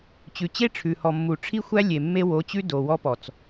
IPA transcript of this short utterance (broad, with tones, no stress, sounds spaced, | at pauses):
t͡ɕ ʉ˨ t͡ɕ e˦ ʈ͡ʂʰ ʉ˨ h ɔ˨ mː u˨ ʈ͡ʂʰ i˦ xʷ æ˦ lʲ e˨ mː e˦ w o˨˦ t͡ɕ ʉ˦ d o˨ w ɔ˦ p ɔ˨ t͡s